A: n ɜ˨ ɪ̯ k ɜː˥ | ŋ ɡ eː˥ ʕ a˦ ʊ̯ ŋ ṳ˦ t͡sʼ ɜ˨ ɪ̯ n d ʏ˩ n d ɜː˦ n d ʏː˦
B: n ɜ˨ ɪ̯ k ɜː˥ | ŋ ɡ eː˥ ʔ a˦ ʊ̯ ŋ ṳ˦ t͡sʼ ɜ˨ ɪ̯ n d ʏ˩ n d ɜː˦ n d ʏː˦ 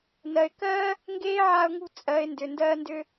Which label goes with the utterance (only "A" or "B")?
A